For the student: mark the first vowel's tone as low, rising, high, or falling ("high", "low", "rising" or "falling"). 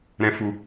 low